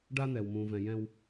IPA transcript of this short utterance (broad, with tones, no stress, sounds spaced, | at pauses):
ɖ a˦ n̪ ɛ˨ w m ũ˨ v ɛ̃˨ j ɛ̃˦ w